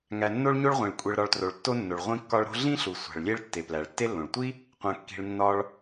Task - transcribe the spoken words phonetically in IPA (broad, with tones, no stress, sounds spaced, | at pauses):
ŋ æ˨ nː o˦ ɭ ɲ o˦ ɭ ʁʷ ĩ˩ ɭ kʷʼ e˨ ɭ ɾ ɒ˨ ɭ t r o˩ ɭ tː o˦ nː o˩ ɭ ʁʷ ĩ˦ kː ɒ˦ ɭ ɾ o̤˦ ɮ ĩ˥ ɬ u˩ sʷ æ̤˩ ɭ lʲ e˦ ɭ tː e˩ p l æ˩ ɭ tː e˥ lː õ˩ ɭ tʷ i˥ | qʷ æ̃˨ kː i̤˨ ɭ nː ɒ˦ ɭ